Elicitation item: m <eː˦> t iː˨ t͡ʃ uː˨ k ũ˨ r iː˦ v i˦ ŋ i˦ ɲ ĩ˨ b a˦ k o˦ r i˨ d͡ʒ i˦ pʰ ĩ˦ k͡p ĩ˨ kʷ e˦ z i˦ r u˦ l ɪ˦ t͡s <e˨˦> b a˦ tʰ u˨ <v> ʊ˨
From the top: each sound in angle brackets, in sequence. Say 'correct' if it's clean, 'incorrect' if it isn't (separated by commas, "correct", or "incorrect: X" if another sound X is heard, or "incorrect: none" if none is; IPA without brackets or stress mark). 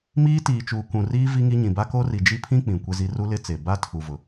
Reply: incorrect: iː˦, incorrect: e˨, correct